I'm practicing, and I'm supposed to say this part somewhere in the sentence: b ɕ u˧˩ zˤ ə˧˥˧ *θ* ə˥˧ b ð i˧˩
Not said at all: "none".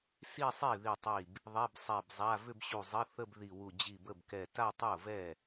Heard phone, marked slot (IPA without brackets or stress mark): θ